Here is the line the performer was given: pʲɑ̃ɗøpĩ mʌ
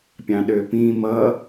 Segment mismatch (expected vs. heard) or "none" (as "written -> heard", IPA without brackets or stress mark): none